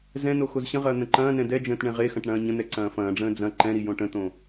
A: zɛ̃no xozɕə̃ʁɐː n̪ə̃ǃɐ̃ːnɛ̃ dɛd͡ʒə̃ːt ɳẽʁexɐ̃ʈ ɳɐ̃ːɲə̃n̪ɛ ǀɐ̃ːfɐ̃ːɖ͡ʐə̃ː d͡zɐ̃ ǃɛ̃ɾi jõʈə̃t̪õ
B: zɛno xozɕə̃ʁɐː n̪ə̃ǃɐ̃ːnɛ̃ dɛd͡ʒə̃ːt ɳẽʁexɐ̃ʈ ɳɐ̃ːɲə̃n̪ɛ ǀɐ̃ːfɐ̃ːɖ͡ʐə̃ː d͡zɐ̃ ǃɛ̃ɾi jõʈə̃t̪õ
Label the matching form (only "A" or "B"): A